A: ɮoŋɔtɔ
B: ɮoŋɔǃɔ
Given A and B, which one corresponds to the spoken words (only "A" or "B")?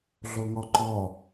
B